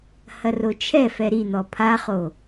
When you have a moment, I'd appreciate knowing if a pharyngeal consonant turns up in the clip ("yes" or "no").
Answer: no